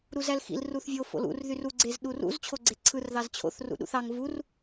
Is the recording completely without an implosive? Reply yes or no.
no